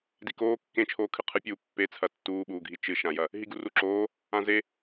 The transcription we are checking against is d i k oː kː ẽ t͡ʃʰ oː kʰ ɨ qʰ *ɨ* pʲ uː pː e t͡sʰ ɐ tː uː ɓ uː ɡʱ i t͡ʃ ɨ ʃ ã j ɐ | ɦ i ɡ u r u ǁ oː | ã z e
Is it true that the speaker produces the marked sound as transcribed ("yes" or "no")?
yes